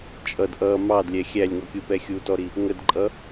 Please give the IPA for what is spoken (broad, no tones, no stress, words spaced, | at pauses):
t͡ʃʼʌd ʔʌ mɑdlʲɛ xʲælʲŋɔkʲupɛ xʲutɔɾi | ŋədǃʼʌ